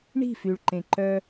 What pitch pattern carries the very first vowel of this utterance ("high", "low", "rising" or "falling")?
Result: falling